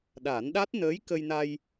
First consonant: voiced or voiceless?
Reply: voiced